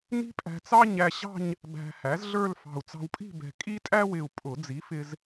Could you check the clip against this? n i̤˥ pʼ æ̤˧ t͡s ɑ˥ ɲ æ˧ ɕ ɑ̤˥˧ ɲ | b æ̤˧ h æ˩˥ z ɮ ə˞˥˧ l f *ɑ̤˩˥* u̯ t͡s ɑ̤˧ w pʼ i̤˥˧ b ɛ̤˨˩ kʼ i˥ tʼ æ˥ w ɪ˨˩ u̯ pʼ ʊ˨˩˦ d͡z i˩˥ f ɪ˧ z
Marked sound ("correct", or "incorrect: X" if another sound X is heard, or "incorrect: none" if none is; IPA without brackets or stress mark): incorrect: ɑ̤˨˩